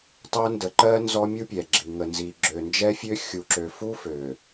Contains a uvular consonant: no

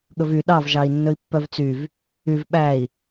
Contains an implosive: yes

